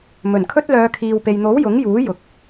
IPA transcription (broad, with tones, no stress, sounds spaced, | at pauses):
m ɵ˨˩ n kʰ ɵ˥ t̚ l œː˨˧ kʰ iː˨ w p e˨ j n̪ o˨˥ w j ʊ˨˥ ŋ j uː˨˥ j ʊ˨ k̚